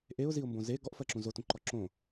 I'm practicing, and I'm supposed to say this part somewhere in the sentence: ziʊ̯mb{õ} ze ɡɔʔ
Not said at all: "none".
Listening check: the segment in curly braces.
õ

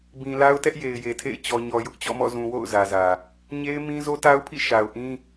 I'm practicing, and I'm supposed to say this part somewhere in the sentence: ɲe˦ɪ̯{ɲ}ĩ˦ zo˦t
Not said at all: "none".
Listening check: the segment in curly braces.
m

